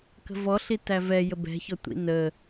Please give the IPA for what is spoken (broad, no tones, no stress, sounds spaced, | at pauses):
k ə̤ v ɔ ɬ i t æ v ɛ j ə b ɛ̤ ç ɔ tʷ ḭ n ə